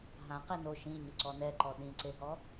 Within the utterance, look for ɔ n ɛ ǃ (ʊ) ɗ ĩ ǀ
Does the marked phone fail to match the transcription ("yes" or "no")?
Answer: yes